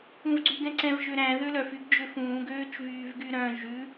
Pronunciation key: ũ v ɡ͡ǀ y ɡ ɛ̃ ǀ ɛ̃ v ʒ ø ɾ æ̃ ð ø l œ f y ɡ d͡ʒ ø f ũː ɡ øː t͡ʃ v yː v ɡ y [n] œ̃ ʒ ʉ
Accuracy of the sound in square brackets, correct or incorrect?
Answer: incorrect